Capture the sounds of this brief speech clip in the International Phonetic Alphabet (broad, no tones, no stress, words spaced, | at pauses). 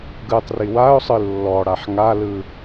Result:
ɡɯtˤri waʊ̯sˤɯ lːɔɽaħ ŋalɯ